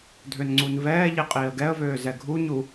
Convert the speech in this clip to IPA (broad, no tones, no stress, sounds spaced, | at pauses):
dʱ ø n ŋ͡ǀ u n v ɛː ʎ i qʼ iː ə̯ ɡ ɛ ə̯ v øː z ɛ ɡʱ u ɲ u